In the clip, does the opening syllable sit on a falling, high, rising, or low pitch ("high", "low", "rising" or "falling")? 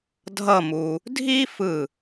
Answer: falling